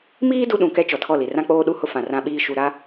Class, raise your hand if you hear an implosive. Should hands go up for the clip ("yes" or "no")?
yes